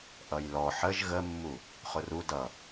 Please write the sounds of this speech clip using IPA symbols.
ʔʌjlɔ ħəʒ ɣəmːu | χʊru dʌ

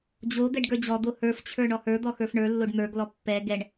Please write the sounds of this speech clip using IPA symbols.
d͡ʑo d̪ɛɖɡə˞d͡ʑɔd̪o hə˞ft͡ɕʰə˞ ɳɔhə˞d̪ɔ xə˞fɳə˞lːoɖ n̪ə˞ɡlɔ pːɛ ɡɛɳ

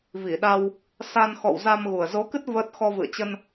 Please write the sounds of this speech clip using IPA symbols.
vi˧˩ɗa˧w | sa˧nxɔ̰˧˨w za˧mɣu˨˩ə̯ zo˨˦kɨ˦˥t̚ və˦˥t̚ xɔ˧vɨ̰˧˨ə̯t͡ɕə˧n

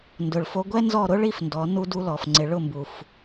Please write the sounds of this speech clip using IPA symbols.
ndʊ˨ɭfo˧ɡʷɛ˦ nzɔ˦˨ɾʊ˦ ɭi˦fndɔ˨˦ nu˧du˧lɔ˨f ŋ͡ǀɪ˨ɭʊ˦˨mbu˨f

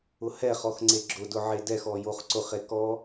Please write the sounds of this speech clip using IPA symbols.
ʊhɛχɔx ŋ͡ǀeɡ͡ǁʊdʊ ʕedɛxɔ joχǀʊχe kɔ

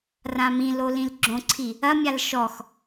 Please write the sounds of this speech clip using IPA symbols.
rãmĩlo lĩlɡ͡ǁõǀʰi | ɐmʲal ʃɔx

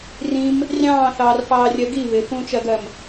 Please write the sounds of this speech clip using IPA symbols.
rĩm | rʲɑ̃ːθɑːrfɑːrʲɜ ɡi βɪ fũt͡ʃɜɡɜm

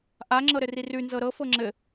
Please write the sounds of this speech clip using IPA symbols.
ʔaŋ͡ǁɤɾɘ rirʉ nzɤɾɤ fɤŋ͡ǁɘ

